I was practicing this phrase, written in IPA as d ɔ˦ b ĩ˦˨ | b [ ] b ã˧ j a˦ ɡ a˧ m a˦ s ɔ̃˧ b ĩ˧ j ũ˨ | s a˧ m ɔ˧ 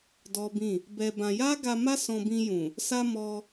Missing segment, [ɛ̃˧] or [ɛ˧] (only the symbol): ɛ˧